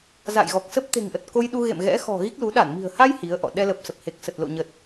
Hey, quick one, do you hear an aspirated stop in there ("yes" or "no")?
no